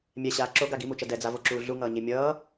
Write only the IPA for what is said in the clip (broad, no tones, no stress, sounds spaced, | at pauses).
mʲ ɛ ɕ aː ǁ o ɡ a ɡ i m u t͡ʃ ʌ d ɛ d͡z a v o ǁ uː ɮ u ŋ ʌː ɲ e mʲ ʌː